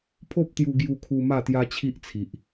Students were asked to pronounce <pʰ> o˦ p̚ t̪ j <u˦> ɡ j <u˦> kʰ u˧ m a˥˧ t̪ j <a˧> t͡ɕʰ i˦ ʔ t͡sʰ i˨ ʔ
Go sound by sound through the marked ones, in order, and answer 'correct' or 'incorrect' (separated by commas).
correct, incorrect, incorrect, incorrect